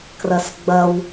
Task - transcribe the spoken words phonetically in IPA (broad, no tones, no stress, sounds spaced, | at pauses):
k r ɐ s ɡ͡b ɐ w